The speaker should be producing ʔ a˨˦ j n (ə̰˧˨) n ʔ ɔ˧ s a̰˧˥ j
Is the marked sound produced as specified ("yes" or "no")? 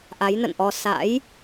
yes